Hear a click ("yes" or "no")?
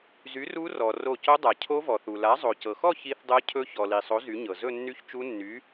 no